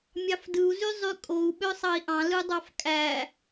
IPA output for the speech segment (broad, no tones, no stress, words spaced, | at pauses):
mʲɑfdɯu̯zy zˤykʼou̯ ɓøsˤɑi̯ʔɑ̃ lɯdˤɑfkʼæ